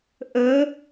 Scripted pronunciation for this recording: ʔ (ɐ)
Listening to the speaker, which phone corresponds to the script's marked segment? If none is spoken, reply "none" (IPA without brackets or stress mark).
ə